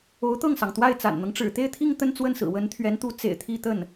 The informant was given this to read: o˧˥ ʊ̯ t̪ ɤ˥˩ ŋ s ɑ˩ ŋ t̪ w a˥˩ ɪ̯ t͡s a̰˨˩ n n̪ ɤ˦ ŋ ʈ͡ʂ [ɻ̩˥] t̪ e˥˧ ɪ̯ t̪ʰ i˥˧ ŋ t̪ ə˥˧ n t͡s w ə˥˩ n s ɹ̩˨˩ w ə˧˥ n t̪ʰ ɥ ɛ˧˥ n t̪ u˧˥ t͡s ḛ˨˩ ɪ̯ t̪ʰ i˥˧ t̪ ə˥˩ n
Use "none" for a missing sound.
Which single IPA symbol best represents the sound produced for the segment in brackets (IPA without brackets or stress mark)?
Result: ɻ̩˨˩